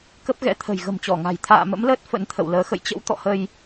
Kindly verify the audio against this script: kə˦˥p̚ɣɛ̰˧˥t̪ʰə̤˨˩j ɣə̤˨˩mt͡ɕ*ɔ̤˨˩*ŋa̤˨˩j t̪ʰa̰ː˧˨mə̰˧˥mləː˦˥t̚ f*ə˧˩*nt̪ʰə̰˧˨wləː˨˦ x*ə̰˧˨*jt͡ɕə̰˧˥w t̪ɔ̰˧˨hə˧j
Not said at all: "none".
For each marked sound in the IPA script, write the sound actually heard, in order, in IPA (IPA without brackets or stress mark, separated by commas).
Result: ɔ˧˩, ə̰˧˥, ə̰˧˨